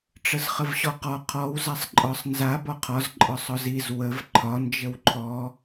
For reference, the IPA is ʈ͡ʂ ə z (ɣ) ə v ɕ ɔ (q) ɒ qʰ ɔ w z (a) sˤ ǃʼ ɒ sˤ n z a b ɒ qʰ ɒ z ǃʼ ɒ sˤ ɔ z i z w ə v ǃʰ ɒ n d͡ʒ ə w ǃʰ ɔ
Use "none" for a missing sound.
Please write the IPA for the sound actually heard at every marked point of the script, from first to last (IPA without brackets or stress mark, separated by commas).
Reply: χ, q, a